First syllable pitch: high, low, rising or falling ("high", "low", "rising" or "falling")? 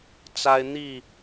high